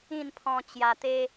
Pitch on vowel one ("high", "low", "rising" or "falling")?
falling